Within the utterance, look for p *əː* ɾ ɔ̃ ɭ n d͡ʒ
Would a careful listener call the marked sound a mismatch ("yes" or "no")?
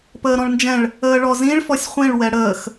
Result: no